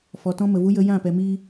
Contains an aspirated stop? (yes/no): no